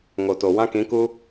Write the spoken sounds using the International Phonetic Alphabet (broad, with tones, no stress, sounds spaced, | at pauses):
ŋ o˨ t o˨ w ã˦ k ĩ˨˦ k u˦